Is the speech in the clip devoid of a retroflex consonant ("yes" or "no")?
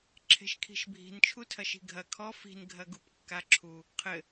yes